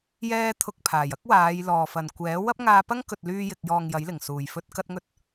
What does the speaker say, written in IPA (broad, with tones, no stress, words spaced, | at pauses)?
jɛː˧t̪ʰʊ˨k̚ pʰaː˨˩jɐ˥k̚waː˨˧j lɔː˨˩fɐ˨˩n kʷɛː˨˥ wɐ˥p̚ŋaː˧pɐ˥ŋ kɵ˨t̚lyː˧jɪ˨k̚jɔː˨ŋ jɐ˨˥jlɪ˨˩ŋ suː˨˩jfɵ˧t̚ kɐ˥t̚ŋɵ˥t̚